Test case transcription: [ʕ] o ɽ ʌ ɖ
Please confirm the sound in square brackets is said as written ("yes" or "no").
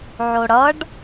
yes